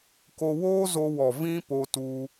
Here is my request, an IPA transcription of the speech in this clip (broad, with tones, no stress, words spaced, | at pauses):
ko˧woː˦zo˧wɔ˨ vĩ˦ po˧tu˧